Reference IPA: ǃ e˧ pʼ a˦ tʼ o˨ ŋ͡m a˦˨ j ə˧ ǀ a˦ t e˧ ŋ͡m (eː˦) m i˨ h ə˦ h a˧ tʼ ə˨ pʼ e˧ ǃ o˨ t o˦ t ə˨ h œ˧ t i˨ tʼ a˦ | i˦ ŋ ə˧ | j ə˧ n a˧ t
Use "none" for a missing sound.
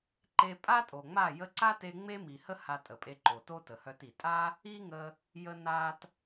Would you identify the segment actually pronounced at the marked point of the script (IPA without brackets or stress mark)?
e˦